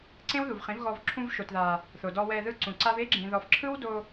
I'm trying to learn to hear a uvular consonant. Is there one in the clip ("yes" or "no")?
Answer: yes